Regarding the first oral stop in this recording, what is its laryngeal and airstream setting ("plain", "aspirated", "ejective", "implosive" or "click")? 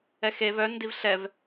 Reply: plain